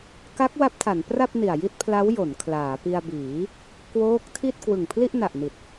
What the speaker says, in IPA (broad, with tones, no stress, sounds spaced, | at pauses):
k a˦˥ k̚ w a˦˥ p̚ tʰ a˩˦ n p r a˥˩ p̚ n i˨˩ a̯ j i˥˩ t̚ pʰ l a˦˥ w j o˩˦ n kʰ l aː˩˦ p i˧ a̯ b iː˩˦ | k w oː˦˥ k̚ tʰ i˥˩ t̚ k w ɯ˨˩ ŋ pʰ l i˥˩ ʔ n a˨˩ ʔ n i˨˩ t̚